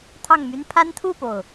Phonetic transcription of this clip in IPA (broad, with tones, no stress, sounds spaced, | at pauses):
t̪ʰ ɑ˥˨ ŋ m y˦ n pʰ a˦ n t̪ʰ u˥˨ p o˩ ʊ̯